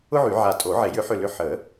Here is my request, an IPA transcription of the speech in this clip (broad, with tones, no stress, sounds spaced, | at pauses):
ʊ˥ ʕ y˨˩˦ ʕ a˧˩ tʼ o˨˩˦ ʕ e˨˩˦ j ʏ˨˥ ħ ʏ˧˩ l ʏ˧˩ ħ ə˨˩˦